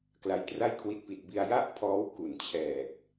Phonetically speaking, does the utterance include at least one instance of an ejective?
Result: no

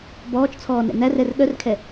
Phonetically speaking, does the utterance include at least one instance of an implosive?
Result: yes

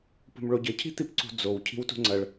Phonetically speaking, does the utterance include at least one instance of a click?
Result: yes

